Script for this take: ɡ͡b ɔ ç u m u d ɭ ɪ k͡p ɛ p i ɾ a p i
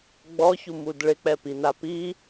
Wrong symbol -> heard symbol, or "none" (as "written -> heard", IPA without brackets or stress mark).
ɾ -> n